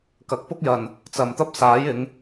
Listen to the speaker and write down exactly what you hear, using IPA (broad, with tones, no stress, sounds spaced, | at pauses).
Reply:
k ɐ˨˥ k̚ p ʊ˥ k̚ j ɐ˨ n | t͡s ɐ˨ m t̪ ɐ˥ p̚ s aː˨˥ j ɪ˨˧ ŋ